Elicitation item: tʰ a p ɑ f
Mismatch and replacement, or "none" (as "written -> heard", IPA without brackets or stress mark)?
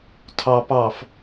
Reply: a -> ɑ